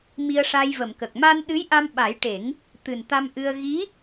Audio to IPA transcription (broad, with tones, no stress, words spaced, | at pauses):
mi˧ə̯ʂa˧jvə˨˩˨mkə˨˩k̚ ma˧nɗɨ˧˥jʔa˧m ɓa˨˩˦jʈe˨˩˦ŋ | t̪ɨ˨˩nt̪a˧mʔɨ˧ə̯ ɣi˧˥